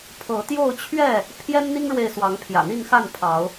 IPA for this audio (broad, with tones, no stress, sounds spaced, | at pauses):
pʰ ɤ˨˦ t̪ j o˥˨ ʊ̯ t͡ɕʰ ɥ ɛ˥˨ | pʰ j ɛ˦ n n̪ i˦ ŋ ɻ w e˨ ɪ̯ s w ɑ˨˦ ŋ pʰ j ä̰˨˩ n̪ i˥˨ n x a˥˨ n pʰ ɑ˨˦ ʊ̯